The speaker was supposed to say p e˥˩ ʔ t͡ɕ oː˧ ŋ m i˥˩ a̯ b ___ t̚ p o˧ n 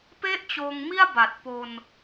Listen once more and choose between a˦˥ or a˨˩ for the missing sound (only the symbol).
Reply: a˨˩